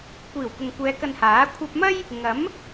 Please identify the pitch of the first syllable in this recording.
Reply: low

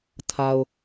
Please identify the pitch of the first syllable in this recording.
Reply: low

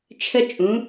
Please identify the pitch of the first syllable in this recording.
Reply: high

